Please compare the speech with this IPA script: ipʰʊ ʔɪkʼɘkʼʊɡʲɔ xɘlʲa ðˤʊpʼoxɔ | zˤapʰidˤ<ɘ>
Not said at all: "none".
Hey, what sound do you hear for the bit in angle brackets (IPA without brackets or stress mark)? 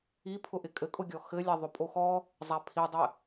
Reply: ɘ